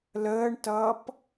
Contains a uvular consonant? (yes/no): no